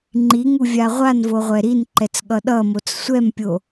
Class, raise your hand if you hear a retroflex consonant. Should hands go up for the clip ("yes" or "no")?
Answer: no